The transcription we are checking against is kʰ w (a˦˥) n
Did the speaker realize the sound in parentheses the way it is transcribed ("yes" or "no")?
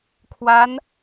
yes